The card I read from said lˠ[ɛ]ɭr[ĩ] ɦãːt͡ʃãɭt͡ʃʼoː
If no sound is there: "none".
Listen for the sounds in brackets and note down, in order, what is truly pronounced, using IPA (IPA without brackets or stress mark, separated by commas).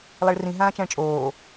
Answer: ɛ, ĩ